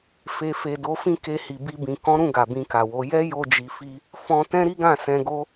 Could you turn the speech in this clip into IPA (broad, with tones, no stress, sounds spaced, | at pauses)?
f e˨ f e˨ d o˨˦ f ĩ˦ k e˧ h i˨ b i˧ b ĩ˨ k ɔ̃˨˦ ɾ ũ˦˨ ɡ a˨ b ĩ˧ k a˨ w o˨˦ j ɛ˦ j o˧ d͡ʒ i˨ f i˧ | f ɔ̃˧ t ɛ̃˦ ɾ i˦ ɡ ã˦˨ s ɛ̃˧ ɡ o˦